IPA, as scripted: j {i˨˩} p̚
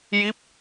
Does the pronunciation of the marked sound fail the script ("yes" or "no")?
yes